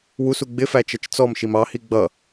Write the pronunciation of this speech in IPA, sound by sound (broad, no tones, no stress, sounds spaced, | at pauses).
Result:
w u s u ɡ͡b ɪ f æ t͡ʃ ʌ t͡ʃ t͡s ɔ m ʃ i m ɑ h i ɡ͡b ʌ